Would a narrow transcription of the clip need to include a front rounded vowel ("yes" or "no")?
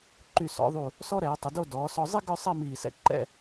yes